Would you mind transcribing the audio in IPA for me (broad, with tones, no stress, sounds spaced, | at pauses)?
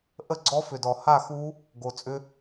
ʔ ə˥˧ ɡ͡ǀ ɔ˦˥ f ʏ˨˩ d ɔ˨˩ h a˥˧ x u˦˥ | ɡ o˨˩ t͡sʼ ʏ˦˥